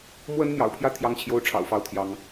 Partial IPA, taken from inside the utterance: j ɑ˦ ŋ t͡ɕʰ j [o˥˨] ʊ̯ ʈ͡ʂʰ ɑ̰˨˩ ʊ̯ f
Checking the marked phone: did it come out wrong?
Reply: yes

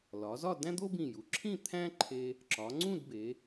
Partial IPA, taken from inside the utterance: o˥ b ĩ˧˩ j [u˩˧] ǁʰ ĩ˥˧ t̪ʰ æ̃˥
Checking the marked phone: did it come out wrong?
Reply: no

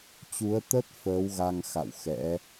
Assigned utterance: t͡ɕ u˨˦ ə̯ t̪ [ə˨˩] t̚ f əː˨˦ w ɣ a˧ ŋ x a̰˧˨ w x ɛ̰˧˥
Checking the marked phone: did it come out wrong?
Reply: yes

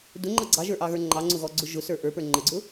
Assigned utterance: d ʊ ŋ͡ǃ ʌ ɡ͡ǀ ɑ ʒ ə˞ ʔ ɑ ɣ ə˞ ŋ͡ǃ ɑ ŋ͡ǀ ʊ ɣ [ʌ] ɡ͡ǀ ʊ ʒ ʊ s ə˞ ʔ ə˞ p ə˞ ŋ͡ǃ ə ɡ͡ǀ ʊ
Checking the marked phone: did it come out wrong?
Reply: yes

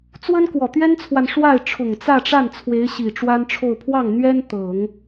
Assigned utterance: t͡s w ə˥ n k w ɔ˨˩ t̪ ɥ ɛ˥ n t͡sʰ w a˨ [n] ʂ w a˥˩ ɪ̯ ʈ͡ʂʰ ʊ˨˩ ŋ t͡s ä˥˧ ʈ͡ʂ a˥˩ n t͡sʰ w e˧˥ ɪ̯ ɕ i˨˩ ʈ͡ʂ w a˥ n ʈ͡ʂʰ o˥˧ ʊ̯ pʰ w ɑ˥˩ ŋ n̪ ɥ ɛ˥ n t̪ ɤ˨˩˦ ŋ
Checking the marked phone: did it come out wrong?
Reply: no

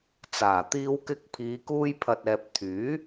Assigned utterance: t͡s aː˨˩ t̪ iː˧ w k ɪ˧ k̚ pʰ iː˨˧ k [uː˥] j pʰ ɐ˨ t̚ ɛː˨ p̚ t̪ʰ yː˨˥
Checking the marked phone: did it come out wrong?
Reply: yes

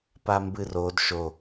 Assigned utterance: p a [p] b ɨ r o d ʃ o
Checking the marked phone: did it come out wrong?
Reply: yes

